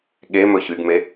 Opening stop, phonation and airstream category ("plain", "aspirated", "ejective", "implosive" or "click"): implosive